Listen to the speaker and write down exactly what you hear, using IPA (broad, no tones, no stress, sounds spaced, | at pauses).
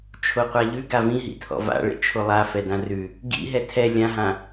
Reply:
t͡ʃʰ o qʷ a ʎ ʉ ɡ a v ĩ ɦ ḭ tʰ ɔ̰ v a̰ ɭ ḛ t͡ʃʰ o lˠ a f ɛ d ã r ʉ | ɡ ḭ ɦ ɛ tʰ ɛ lʲ ã ɦ ã